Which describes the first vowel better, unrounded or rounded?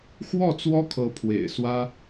rounded